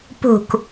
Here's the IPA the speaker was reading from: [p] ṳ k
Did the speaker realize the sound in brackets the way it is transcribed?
yes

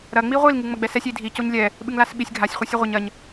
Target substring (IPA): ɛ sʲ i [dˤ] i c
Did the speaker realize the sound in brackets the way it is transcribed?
no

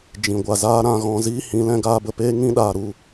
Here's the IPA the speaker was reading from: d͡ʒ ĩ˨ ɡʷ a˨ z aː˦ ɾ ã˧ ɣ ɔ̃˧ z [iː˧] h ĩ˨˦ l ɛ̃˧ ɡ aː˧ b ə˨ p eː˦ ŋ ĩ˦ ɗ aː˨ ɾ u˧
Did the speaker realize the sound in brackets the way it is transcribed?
no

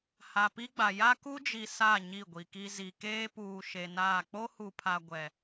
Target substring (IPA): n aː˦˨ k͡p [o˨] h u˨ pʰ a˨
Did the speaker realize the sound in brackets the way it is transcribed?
no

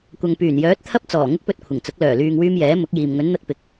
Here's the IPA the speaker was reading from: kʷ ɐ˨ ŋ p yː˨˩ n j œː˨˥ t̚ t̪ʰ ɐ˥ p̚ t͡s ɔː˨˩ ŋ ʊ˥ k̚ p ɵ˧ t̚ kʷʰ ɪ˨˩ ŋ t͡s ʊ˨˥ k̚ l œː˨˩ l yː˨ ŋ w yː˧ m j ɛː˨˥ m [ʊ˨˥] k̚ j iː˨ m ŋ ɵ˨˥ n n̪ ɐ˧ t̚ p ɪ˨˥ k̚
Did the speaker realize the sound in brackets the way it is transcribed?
yes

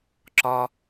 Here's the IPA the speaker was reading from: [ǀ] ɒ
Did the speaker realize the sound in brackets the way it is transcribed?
no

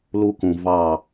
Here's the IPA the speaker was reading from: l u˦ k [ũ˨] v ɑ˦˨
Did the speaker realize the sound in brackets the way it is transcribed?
yes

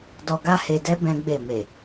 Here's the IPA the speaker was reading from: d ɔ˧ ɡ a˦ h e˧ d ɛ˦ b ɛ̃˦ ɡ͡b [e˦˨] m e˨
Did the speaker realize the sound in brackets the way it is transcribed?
yes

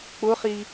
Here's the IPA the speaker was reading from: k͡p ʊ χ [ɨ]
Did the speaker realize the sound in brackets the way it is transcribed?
no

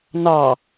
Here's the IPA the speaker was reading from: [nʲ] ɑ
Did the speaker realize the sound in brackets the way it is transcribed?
no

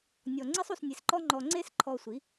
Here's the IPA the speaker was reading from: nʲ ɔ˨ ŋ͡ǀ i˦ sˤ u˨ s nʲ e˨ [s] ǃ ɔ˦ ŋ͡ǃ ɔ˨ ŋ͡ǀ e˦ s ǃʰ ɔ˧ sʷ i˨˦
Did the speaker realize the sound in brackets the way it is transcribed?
yes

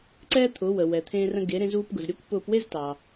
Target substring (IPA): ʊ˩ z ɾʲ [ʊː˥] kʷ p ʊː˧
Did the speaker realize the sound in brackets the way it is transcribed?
yes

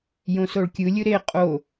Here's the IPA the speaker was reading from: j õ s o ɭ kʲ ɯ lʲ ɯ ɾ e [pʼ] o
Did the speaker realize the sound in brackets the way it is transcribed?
no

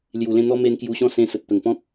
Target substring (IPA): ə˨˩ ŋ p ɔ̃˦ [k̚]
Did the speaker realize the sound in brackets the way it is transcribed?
yes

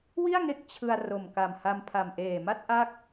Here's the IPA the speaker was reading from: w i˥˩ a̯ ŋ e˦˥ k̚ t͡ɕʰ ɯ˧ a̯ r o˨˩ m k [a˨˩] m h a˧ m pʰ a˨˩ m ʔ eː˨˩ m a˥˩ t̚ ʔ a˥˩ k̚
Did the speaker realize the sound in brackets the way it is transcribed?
yes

